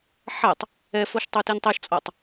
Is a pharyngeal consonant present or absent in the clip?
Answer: present